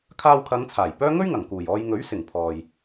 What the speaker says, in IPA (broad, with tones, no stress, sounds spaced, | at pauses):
kʰ aː˧ w kʰ ɐ˨˧ ŋ t͡sʰ aː˨˩ j p œː˥ ŋ ɵ˥ ɥ ŋ ɐ˨˩ ŋ k uː˨˩ j ɔː˧ j ŋ ɵ˨˥ ɥ s ɪ˨˩ ŋ pʰ ɔː˨ j